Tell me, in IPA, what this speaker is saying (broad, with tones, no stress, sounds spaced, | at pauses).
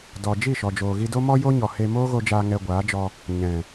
d ɔ˧ d͡ʒ i˦˨ ʃ ɔ˨ d͡ʒ oː˨ ɣ i˧ d o˦ m ɔ˦ j o˦ ɲ ɔ˨ h e˧ m oː˦ ɣ o˧ d͡ʒ aː˧ ŋ ɛ˧ ɡʷ aː˨˦ d͡ʒ ɔ˧ | ɲ ɛ̃˨